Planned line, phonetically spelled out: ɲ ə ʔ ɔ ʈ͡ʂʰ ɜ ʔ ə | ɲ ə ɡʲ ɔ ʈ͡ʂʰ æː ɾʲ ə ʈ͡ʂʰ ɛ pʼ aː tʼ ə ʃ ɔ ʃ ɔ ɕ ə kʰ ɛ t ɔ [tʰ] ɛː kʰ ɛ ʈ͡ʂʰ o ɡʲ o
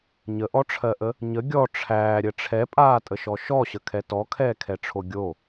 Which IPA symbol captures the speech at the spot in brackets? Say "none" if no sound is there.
kʰ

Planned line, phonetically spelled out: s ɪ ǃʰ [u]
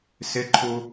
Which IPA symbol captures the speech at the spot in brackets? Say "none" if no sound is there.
u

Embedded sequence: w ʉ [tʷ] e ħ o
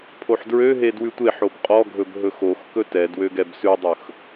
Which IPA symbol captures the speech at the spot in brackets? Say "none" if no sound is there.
tʷ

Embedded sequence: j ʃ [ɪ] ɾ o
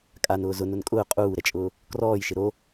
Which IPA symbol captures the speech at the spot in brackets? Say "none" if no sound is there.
ɪ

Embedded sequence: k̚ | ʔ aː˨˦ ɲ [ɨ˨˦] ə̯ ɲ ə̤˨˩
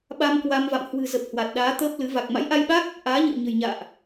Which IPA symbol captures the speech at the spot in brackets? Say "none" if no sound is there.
ɨ̰˧˨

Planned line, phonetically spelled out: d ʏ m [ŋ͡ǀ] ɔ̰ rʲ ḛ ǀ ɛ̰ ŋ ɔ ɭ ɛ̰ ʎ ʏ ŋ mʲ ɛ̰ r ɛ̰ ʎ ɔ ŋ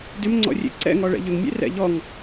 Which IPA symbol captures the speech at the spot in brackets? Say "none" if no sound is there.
ŋ͡ǀ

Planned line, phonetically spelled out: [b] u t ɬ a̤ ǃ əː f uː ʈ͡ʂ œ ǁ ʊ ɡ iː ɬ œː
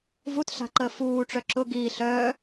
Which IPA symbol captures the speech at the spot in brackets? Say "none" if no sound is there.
v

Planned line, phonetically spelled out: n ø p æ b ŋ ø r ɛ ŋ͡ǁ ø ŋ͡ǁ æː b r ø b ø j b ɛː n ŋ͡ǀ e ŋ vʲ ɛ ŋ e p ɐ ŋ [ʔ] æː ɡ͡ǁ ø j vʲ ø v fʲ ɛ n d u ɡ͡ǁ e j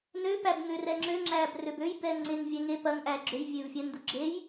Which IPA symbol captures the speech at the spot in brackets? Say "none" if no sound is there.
ʔ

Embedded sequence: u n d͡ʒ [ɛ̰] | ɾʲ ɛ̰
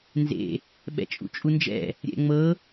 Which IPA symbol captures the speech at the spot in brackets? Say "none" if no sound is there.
ɛ̰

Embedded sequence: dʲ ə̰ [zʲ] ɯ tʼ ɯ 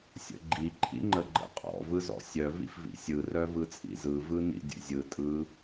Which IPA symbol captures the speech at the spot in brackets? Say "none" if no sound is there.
zʲ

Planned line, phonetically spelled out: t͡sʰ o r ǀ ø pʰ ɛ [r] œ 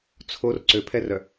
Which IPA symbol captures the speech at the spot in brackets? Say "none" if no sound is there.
r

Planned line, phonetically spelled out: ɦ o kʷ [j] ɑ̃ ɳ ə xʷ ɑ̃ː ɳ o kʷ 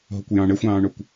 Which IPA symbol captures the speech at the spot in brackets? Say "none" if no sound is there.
j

